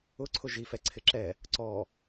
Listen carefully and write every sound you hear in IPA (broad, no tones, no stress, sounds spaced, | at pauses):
ʊ ǀʰ ʊ ʒ i f ɛ ǀʰ ɪ ǁ ɛ | ǀ ɔ